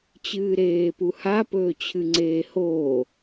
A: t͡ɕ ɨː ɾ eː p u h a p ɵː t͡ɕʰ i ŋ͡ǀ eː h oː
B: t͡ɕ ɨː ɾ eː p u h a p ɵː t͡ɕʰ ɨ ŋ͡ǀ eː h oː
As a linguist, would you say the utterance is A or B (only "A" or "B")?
B